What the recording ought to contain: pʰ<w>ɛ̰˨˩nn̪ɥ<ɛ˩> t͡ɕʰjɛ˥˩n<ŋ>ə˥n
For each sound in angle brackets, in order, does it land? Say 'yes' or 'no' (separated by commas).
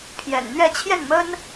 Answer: no, no, no